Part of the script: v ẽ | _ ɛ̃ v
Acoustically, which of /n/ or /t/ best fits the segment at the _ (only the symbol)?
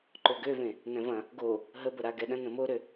n